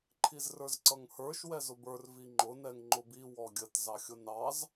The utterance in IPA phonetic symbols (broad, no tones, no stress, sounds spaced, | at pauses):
ǃʰ i z r ə˞ z ǀ ʌ ŋ h ə˞ ʃ w ɛ z ʊ b ə˞ r v i ŋ͡ǃ ʊ n ɛ ŋ ŋ͡ǃ ʊ b i w ɔ ɡʲ ə t z ɑ xʲ ʊ n ɑ z